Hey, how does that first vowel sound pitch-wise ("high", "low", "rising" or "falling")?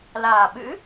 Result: low